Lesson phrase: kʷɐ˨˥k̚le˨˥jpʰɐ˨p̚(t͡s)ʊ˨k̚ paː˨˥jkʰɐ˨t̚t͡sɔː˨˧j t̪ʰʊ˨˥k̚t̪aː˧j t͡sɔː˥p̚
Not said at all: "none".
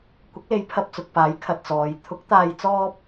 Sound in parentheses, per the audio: t͡s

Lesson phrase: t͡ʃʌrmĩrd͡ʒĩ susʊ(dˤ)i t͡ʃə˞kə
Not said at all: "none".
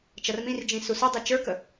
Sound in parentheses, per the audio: dˤ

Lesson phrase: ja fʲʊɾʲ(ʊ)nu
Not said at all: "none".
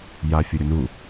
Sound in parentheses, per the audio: ʊ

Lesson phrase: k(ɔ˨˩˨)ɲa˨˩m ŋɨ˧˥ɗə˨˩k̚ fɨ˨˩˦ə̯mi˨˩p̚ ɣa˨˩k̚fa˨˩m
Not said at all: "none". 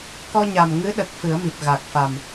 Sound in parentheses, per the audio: ɔ˧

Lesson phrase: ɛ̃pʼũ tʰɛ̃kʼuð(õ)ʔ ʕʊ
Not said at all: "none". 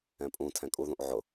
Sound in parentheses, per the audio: ũ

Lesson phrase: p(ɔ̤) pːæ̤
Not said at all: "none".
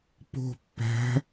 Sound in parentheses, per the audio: o̤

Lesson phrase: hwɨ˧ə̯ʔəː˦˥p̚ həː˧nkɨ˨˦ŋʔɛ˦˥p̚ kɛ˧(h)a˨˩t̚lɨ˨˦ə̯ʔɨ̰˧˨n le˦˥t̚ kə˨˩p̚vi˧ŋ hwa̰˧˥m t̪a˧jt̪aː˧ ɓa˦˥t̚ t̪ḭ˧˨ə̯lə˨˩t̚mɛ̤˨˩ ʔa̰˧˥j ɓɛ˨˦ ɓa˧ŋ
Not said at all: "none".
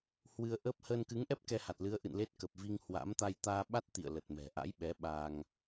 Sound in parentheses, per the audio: h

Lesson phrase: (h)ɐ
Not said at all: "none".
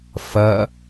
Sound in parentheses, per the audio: f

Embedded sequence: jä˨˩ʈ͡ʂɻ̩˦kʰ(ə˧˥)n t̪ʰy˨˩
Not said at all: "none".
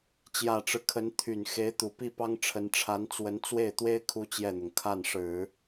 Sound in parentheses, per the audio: ə˧˥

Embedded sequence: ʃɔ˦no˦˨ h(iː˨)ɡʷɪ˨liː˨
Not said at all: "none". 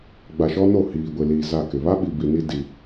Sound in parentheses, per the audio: iː˨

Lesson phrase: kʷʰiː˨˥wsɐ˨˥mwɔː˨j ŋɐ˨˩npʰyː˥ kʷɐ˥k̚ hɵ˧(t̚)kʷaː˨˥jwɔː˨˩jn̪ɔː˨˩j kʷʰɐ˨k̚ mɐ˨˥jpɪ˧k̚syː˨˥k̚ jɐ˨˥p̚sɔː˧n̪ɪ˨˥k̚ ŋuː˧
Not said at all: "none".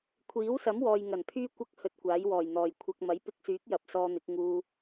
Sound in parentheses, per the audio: t̚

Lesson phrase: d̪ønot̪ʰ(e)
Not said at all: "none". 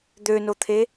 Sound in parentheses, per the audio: e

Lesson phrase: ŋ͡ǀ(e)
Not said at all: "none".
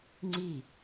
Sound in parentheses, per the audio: i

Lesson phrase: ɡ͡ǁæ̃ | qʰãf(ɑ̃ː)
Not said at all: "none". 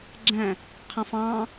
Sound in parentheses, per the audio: ɑ̃ː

